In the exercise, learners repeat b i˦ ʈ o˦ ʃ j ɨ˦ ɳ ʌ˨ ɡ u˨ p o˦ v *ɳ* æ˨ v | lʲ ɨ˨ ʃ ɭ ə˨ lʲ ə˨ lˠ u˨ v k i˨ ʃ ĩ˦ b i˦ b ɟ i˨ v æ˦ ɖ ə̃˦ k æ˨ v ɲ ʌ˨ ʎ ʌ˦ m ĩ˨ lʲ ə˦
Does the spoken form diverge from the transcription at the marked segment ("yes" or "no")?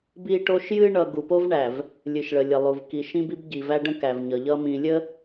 no